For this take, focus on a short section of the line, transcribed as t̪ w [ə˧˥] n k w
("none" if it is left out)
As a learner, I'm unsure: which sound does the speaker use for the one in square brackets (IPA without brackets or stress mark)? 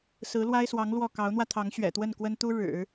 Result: ə˥˩